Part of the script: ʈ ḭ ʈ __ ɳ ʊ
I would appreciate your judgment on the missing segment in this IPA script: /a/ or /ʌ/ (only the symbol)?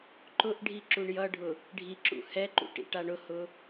a